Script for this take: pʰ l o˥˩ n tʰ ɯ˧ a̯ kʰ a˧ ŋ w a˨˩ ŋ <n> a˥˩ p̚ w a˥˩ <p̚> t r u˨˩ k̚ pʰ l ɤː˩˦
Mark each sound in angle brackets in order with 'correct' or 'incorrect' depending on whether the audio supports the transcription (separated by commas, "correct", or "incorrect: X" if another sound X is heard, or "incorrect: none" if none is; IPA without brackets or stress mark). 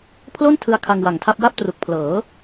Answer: incorrect: tʰ, correct